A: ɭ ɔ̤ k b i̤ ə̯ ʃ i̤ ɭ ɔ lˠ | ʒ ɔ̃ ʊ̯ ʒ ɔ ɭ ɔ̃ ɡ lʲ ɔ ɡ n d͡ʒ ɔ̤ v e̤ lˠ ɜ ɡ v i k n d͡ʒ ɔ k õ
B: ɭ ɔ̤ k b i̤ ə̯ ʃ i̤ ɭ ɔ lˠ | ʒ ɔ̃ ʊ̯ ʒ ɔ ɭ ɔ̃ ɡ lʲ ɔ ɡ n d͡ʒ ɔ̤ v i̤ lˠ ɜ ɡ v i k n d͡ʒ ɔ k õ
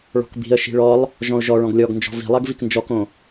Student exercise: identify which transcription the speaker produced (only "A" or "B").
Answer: B